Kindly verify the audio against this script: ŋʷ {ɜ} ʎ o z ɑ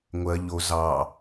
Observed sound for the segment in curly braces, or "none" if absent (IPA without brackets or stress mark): ɜ